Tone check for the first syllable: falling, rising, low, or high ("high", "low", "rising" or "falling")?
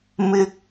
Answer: high